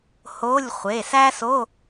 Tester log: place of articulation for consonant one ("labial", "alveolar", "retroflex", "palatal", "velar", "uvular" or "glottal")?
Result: glottal